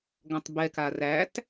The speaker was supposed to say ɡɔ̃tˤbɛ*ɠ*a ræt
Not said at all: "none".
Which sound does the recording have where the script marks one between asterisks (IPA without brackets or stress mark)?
k